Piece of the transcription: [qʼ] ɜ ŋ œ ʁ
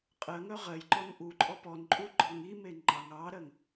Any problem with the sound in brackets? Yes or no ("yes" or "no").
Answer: no